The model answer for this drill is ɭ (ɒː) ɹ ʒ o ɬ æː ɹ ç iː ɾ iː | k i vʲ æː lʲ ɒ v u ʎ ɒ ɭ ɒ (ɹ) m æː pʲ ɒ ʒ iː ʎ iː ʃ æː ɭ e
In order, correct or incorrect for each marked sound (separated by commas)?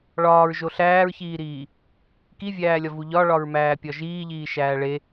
correct, correct